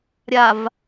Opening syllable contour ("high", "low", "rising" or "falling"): low